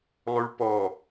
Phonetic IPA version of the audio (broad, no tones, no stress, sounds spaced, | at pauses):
lˠ ʉ ɭ p ɔ